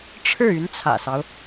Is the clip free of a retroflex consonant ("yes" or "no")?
no